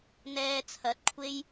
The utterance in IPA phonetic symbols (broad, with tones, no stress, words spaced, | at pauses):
n̪ɛː˧ t͡sʰɐ˨˥t̚kʷʰe˥j